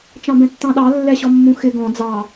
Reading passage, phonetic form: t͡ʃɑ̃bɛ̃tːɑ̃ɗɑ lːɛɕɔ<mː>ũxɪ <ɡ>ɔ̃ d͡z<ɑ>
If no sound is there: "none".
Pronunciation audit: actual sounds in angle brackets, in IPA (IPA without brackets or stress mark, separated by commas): mː, ɡ, ɑ